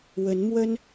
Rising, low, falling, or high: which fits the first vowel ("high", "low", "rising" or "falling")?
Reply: rising